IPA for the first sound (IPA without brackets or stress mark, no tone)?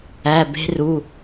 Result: æ